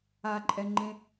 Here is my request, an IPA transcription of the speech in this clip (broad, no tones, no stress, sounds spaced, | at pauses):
a ǃʼ ɛ ŋ͡ǃ ẽ